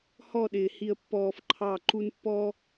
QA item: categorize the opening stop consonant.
implosive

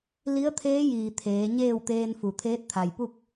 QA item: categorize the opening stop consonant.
aspirated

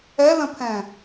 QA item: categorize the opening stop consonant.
aspirated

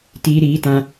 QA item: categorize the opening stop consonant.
plain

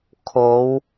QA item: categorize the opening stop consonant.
aspirated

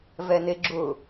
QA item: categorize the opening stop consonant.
click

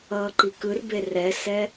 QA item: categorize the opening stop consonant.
click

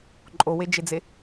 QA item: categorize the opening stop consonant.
click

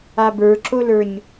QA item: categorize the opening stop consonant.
plain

